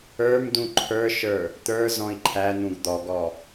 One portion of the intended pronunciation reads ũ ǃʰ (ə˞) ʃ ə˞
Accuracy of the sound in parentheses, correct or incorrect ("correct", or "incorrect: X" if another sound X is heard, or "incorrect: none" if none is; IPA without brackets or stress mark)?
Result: correct